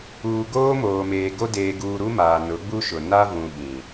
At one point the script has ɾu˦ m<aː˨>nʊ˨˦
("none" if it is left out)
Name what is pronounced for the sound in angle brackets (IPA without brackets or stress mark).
aː˨